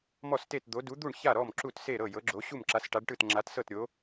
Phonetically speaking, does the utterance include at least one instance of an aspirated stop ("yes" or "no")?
no